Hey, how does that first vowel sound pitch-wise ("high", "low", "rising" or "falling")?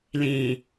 low